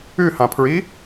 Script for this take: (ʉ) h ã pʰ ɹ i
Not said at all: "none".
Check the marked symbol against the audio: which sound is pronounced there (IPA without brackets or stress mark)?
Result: ʉ